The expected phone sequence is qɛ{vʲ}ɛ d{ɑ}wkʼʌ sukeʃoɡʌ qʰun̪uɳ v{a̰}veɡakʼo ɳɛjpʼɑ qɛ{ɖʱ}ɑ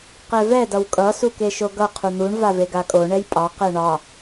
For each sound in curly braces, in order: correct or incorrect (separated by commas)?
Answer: incorrect, incorrect, incorrect, incorrect